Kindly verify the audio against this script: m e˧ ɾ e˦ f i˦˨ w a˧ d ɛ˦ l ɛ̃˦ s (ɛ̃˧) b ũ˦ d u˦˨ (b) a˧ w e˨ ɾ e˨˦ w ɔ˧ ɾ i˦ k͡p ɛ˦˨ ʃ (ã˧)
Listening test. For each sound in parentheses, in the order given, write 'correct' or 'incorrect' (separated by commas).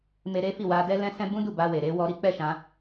incorrect, correct, correct